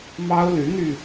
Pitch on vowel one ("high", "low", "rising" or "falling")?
high